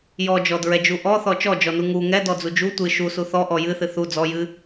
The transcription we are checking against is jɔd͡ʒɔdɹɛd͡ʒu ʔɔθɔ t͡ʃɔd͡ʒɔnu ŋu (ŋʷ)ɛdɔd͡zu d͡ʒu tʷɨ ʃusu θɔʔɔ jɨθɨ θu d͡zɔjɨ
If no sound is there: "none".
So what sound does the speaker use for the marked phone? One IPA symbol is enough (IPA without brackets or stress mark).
ŋ